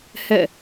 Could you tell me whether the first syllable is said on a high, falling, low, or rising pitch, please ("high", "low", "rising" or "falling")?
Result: falling